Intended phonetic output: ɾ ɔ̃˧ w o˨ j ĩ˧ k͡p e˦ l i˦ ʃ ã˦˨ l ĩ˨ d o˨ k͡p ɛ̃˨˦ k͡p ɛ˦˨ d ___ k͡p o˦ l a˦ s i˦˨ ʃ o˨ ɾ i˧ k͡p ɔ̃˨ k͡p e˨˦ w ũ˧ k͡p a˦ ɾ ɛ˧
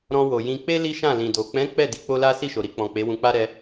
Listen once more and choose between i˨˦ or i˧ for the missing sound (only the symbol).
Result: i˨˦